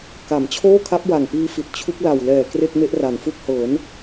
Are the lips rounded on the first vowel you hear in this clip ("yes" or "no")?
no